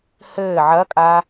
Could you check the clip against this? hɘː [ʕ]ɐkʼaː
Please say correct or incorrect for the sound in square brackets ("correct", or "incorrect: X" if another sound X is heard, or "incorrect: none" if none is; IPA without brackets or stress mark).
correct